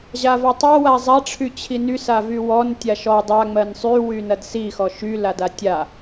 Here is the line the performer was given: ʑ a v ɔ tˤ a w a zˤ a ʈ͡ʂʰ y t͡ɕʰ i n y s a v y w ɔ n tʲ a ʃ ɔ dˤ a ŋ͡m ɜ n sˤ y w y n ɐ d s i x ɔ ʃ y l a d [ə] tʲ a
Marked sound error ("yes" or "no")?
yes